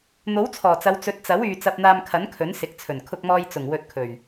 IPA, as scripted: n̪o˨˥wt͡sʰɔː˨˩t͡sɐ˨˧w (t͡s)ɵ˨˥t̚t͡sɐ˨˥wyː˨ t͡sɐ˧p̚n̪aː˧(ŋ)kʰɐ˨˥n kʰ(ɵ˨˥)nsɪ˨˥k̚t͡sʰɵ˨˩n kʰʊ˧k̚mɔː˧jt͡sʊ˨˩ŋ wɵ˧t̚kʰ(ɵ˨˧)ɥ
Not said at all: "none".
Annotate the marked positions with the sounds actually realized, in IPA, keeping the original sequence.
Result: t͡s, m, ɵ˨˥, ɵ˨˩

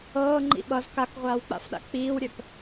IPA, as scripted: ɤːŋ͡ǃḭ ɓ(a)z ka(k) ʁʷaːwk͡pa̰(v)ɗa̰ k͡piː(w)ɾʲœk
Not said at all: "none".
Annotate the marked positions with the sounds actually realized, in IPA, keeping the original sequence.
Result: ʌ, k, f, w

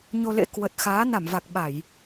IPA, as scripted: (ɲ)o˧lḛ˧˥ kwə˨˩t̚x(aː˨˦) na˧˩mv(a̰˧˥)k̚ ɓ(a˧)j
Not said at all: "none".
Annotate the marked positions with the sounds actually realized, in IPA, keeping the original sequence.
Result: ɲ, aː˨˦, a˨˩, a˧˩˨

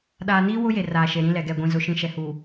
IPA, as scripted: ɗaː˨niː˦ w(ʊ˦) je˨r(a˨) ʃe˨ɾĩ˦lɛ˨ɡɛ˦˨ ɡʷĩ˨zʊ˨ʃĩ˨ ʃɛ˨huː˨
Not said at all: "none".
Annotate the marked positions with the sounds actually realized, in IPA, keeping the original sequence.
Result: ʊ˦, aː˨

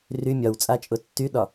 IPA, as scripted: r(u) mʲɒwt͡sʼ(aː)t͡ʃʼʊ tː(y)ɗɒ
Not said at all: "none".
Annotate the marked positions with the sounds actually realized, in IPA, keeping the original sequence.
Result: y, a, y

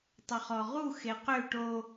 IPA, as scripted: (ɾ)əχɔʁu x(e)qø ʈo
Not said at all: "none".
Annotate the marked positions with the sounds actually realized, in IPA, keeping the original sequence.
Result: tˤ, e

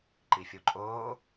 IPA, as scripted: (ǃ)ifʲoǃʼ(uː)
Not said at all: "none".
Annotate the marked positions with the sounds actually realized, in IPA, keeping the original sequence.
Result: ǃ, oː

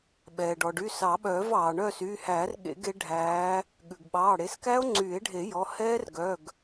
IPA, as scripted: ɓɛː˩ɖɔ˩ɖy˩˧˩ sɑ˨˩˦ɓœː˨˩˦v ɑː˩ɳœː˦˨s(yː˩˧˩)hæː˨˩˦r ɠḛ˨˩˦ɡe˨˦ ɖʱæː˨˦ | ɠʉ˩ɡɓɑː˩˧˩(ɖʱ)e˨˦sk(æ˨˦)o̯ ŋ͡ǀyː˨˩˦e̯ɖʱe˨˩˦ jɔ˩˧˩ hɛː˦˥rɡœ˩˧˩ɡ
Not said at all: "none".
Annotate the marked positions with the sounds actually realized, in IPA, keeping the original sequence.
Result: yː˩˧˩, ɽ, æ˦˥

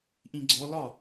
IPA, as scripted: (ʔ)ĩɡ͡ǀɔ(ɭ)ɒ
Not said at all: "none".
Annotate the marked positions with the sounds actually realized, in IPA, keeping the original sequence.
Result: ʔ, l

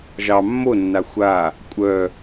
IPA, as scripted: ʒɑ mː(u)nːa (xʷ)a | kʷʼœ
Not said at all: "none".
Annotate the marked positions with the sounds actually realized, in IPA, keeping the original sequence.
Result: o, xʷ

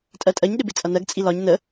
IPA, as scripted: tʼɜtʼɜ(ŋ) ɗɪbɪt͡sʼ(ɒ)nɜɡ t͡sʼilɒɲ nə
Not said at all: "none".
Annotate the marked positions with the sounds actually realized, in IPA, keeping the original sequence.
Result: ɲ, ʌ

